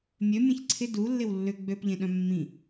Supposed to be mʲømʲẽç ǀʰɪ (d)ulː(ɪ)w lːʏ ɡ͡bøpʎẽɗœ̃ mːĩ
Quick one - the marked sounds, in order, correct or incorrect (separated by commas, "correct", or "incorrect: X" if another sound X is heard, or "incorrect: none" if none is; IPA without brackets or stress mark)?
correct, correct